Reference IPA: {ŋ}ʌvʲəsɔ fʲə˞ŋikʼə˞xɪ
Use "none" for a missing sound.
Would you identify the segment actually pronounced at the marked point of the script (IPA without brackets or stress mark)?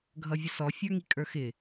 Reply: ɡʱ